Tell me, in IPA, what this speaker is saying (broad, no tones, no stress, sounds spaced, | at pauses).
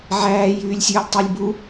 ʕ æː j yː lʲ sʲ ɵː lʲ tˤ œ lʲ b u